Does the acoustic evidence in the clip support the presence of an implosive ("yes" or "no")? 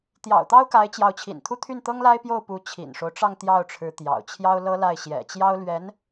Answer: no